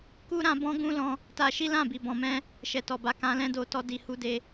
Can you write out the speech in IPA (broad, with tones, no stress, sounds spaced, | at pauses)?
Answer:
k u˦ ɾ ã˧ b ɔ̃˦ ɡ ũ˦ l ɔ̃˧ | t a˧ ʃ i˦ l ã˦˨ b i˨ b ɔ̃˨ m ɛ̃˧ | ʃ ɛ˨ t ɔ˨ b a˨˦ k ã˧ l ɛ̃˦ d o˧ t ɔ˧ d i˨ h u˧ d e˧